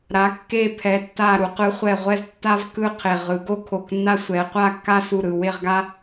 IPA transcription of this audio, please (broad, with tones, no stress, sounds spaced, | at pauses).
ɾ a˩˧ kː e˧˩ pʰ ɛ˩˧ tː a˧˩ ɾ u˩˧ q ɯ˩˧ χʷ ɛ˧˩ ʁʷ ɛ˥˧ z tː a˥ v k ɯ˥˧ qʰ e˧˩ ʁ ɯ˩˧ ɡ o˥ kʰ o˧˩ k nː a˥ sʷ ɛ˩˧ qʷ a˥˧ kː a˥ s u˧˩ ɾ ɯ˧˩ w e˥˧ ʁ ɡ a˥